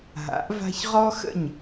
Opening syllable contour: rising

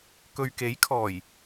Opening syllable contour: low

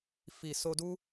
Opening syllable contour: low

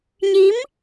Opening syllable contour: rising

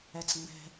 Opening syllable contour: low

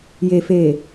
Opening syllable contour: low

